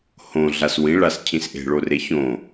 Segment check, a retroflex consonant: present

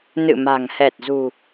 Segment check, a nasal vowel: absent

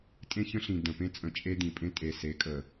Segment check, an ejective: present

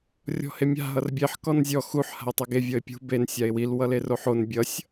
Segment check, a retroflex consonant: absent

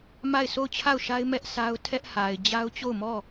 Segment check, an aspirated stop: present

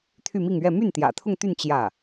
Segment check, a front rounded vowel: present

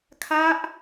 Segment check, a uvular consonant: absent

